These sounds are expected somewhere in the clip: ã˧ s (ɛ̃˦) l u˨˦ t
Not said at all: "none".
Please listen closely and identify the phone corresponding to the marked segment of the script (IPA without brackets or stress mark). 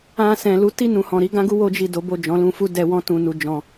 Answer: ɛ̃˨